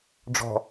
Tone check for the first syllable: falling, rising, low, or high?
low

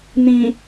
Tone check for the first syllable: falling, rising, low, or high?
low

